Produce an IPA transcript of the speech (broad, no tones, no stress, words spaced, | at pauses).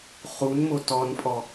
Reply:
χunmo tɔnpʼɔ